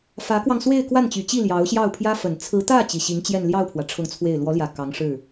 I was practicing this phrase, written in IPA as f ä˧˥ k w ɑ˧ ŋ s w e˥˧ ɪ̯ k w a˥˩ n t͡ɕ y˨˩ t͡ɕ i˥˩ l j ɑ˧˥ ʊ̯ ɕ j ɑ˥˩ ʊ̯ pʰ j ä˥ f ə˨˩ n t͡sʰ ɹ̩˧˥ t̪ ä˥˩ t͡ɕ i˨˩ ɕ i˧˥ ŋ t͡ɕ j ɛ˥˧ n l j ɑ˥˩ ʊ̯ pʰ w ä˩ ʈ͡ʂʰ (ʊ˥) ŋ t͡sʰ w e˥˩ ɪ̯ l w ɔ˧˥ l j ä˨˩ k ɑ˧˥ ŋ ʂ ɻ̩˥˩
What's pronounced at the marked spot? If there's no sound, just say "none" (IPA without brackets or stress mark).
ʊ˥˧